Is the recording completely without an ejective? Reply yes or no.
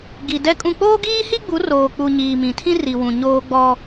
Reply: no